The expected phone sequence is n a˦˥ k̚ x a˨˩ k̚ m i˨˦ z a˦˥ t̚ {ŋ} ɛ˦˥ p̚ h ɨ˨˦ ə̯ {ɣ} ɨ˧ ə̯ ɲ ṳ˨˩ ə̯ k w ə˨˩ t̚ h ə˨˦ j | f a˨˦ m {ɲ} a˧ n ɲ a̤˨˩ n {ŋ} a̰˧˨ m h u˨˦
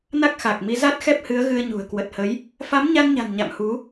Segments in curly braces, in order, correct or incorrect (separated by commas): incorrect, correct, correct, incorrect